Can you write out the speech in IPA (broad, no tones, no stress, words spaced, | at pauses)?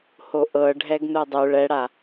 hoʔɤ ɖʱɛɡnudˤu ɭɛɽa